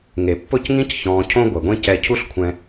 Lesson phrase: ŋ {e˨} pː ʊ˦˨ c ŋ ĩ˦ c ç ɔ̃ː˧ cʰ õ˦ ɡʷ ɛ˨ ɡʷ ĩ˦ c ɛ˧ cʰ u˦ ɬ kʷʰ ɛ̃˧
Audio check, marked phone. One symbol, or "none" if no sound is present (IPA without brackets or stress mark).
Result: e˨